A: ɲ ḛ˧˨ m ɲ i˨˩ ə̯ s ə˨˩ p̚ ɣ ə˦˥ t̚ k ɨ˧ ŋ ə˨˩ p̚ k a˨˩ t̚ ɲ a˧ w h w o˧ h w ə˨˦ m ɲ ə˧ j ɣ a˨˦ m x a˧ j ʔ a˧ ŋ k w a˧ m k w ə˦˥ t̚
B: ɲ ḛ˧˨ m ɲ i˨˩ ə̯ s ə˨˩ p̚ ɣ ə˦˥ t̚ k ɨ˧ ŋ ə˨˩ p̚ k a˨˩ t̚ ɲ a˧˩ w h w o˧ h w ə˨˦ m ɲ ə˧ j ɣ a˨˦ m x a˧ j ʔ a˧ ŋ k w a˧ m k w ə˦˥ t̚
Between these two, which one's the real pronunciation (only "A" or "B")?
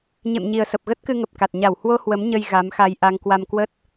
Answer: B